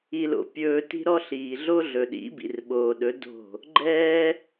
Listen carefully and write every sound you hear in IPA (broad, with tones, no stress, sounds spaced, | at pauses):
i˧ l o̰˧ pʲ ɵː˧ t i̤˦ ɾ ɔ˦ ɬ iː˨ ɮ o˦ ɮ ɵ˨ ɗ ḭ˨˦ b ḭ˨ r ɓ oː˨ ɗ ɵ˨˦ d o̤˦˨ | ɡ͡ǃ ɛː˦